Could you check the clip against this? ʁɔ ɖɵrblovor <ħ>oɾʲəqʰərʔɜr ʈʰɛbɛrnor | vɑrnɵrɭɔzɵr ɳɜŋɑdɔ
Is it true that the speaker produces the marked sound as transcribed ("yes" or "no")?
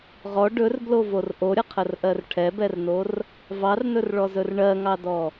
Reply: no